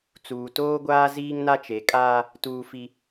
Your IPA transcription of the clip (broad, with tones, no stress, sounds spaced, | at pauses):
t͡s uː˨ t oː˦ ɡʷ aː˦ z iː˦ ŋ n a˦ t͡ʃ e˨˦ kʼ aː˦ | t uː˦ f i˦